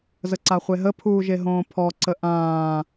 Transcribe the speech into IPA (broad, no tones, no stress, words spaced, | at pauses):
zəǀaχʷeɦə pʰuːʒeɦõːpʰɔ ǀəʔãː